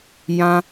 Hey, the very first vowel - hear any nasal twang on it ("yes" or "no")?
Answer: yes